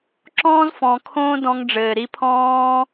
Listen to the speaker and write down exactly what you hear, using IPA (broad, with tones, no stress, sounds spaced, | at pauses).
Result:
ǁ ɔ̃ː˦ z f ɔ̃˨ kʰ õː˦ d ɔ̃˧ ŋ ɖ͡ʐ ɘː˨ ɾ i˧ pʰ ɔ̃ː˦